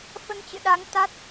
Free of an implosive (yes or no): no